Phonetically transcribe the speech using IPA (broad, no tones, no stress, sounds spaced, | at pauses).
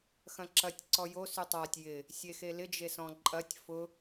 x ɐ̃ ǁ ɐ tʲ ǀ ɔ j o s y tˤ a tʲ j ɪ | sʲ e x e l ɪ d͡ʒ e s ɔ̃ ǃʼ ɐ tʲ f ʊ